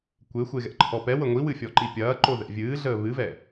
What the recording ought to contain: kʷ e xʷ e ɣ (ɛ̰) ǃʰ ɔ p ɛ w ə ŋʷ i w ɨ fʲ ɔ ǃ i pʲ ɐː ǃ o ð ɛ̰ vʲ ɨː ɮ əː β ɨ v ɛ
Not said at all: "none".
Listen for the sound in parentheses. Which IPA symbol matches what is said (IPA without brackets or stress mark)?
ɛ̰